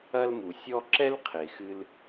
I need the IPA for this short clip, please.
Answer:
ɐ˧ l m u˩ sʲ ɔ˧ ǁ ɛ˥ l qʰ e˩ x ɨ˧ l

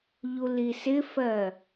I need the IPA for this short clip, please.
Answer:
ʎ u l i s ɪ f ɜ

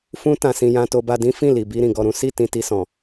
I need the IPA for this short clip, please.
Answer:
f ũ˦ t ã˧ s ĩ˧ j ã˧ t o˧ b a˧ d ĩ˦ f ĩ˦˨ l i˨ b i˧ ɾ ĩ˨ ɡ ɔ˧ ɾ ũ˦ s i˦˨ t ĩ˧ t i˧ s ɔ̃˨

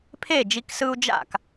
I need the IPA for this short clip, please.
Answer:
pʰ e˥˩ d͡ʒ i˧ k s ɯ˧ u̯ d͡ʒ a̰˥˩ k

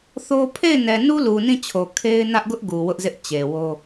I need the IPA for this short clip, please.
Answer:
θ o˦ pʰ e˦˨ ɪ̯ n ɛ˨ n u˦ l u˨ n ĩ˦˨ t͡ɕʰ o˨ kʰ e˦ ɪ̯ n ä˦ ʔ ɡ ʊ˦ ʔ ɡ u˨ w ʊ˦ ʔ z ɪ˦ ʔ t͡ɕ e˨ w o˦

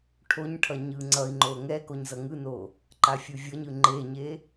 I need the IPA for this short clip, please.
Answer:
ʈʰ o ɲ ʈʰ ʌ ɲ ɯ ŋ͡ǀ ʌ i̯ ŋ͡ǃ o ŋ ɛ k o ɲ z ʌ ŋ ɯ n o | ǃ a fʲ u vʲ ʌ ɲ ɯ ŋ͡ǃ e ɲ e

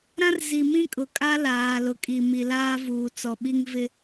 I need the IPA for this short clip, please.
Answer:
ɾ ã˦ r z i˨ m ĩ˦ kʼ ʊ˨ kʼ a˦ l aː˨ l ʊ˨ kʼ i˨ m i˨ l aː˦ v uː˨ t͡s ɔ˨ ɓ i˦ ŋ v ɪ˦

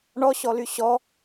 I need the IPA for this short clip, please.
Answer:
ɳ ɔ ɕ ɔ l y ɕ ɔ

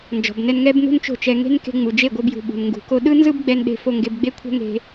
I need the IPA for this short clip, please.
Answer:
n d͡ʒ ɔ̤˨ b n ɛ˧ n ŋ ɛ˦ b n ṳ˦ n t͡ʃ o̤˦˨ t͡ʃ ɛ˧ ŋ e̤˦ n k e̤˧ ŋ͡m u˨ d͡ʒ e˦˨ ɡʷ ɤ˧ b j ṳ˨ ɓ ṳ˨ n ŋ ɡ ṳ˨ k o˧ ɗ ɯ˦ n z ɯ˦ b ɡ͡b ɛ˧ n ɗ e̤˧ f o˧ ŋ ɡ e˧ b ɡ͡b e˦ kʷʰ ɛ̤˦ ŋ e̤˧

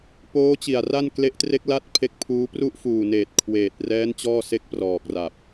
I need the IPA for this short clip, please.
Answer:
p oː˦˥ t͡ɕ i˨˩ a̯ r a˥˩ n k l e˦˥ ʔ t r e˦˥ k̚ l a˥˩ t̚ pʰ e˦˥ k̚ pʰ uː˦˥ p r u˥˩ ʔ f uː˨˩ n eː˨˩ t̚ kʰ w eː˨˩ t̚ r ɛː˦˥ n t͡ɕ ɔː˥˩ s e˥˩ k̚ p r ɔː˨˩ k̚ r a˨˩ p̚

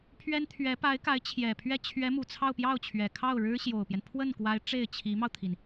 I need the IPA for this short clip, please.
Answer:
pʰ ɥ ɛ˥ n t̪ʰ ɥ ɛ˧˥ p a˧˥ ɪ̯ k a˧˥ ɪ̯ t͡ɕʰ j ɛ˨˩ pʰ ɥ ɛ˥˩ t͡ɕʰ ɥ ɛ˧˥ m u˨˩ t͡sʰ ɑ˥˧ ʊ̯ p j ɑ˥˩ ʊ̯ t͡ɕʰ ɥ ɛ˨˩ kʰ ɑ˥˩ ʊ̯ ɻ ɻ̩˥ ɕ j o˨˩ ʊ̯ p j ɛ˦ n pʰ w ə˥˩ n k w a˧˥ ɪ̯ ʈ͡ʂ e˥˩ ɪ̯ t͡ɕʰ i˧˥ m ɑ˧ ʊ̯ t̪ʰ i˩ n

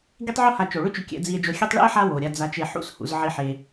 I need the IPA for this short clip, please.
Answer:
ɡ i˦ tˤ ʕ u˦ h a˨ t͡ʃ o˩ ɭ ʏ˥ t͡ʃ ʏ˨ kʲ ɛ̰˨ d͡z i˨ e̯ d͡ʒ o˨ xʲ e˦ tˤ ɭ ɛ̰˥ e̯ ħ a˦ w o˩ ɾʲ a˨ d͡z a˨ t͡ʃ e˨ ħ ṵ˦ s h ṵ˨ z ʕ i˨ ħ e˩

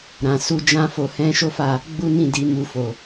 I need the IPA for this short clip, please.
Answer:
ɾ ã˧ s u˦ d͡ʒ ã˦ f o˧ h ɛ̃˦ ʃ o˦ f a˦˨ | ɡ͡b u˦ n ĩ˦˨ d i˨˦ m u˧ f o˨

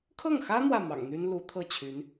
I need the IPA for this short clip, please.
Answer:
kʰ ɤ˥˩ ŋ x ä˥ n̪ w ä˥˩ m ɑ̰˨˩ ŋ n̪ y˥ n l u˧˥ t̪ʰ ɤ˥˩ t͡ɕʰ y˧˥ n

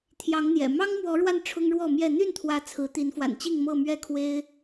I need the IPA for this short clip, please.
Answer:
t̪ʰ j ɑ˨˦ ŋ n̪ j ɛ̰˨˩ m ɑ˦ ŋ m w ɔ˨˦ ɻ w a˧ n ʈ͡ʂʰ ʊ˦ ŋ ɻ w ɔ˥˨ m j ɛ˥˨ n̪ y˥˨ n t̪ʰ w ä˨˦ t͡sʰ ɹ̩˨˦ t̪ i˨˦ n f w a̰˨˩ n t͡ɕ i˥˨ ŋ m ɤ˥˨ m ɥ ɛ˥˨ kʰ w e˦ ɪ̯

